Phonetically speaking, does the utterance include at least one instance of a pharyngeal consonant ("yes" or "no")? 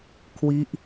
no